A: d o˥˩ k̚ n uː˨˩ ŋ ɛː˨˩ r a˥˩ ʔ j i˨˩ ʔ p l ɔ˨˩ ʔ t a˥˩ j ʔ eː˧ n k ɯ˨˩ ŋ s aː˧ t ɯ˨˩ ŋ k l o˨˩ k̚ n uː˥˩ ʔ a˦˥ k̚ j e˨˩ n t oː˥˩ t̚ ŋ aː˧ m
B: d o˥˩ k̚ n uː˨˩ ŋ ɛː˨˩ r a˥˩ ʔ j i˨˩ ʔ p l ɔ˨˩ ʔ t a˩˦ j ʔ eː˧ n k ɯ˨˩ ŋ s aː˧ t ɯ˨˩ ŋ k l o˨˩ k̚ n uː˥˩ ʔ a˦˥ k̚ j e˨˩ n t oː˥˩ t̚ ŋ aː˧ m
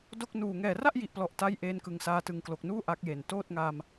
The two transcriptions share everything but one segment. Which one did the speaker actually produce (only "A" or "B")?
A